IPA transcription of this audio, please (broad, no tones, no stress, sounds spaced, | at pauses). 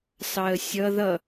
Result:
s ɑ ə̯ sʲ ʌ ð ʌ